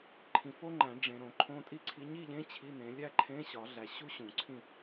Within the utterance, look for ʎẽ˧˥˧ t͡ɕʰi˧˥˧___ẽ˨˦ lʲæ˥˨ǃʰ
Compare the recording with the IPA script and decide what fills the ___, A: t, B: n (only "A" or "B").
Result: B